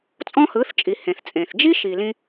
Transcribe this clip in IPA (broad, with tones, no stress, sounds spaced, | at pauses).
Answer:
t͡sʼ ɔ̃˦ h ɯ˨˦ θ t͡ʃʼ i˨ h ẽ˨ θ t͡sʼ ẽ˨ θ d͡ʒ i˦ ʃ i˨ l ĩ˧